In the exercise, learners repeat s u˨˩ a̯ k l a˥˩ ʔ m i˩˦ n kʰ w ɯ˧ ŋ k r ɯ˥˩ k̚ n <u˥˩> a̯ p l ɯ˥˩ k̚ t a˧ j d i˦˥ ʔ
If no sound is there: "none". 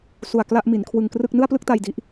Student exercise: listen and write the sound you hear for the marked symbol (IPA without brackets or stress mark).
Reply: ɯ˥˩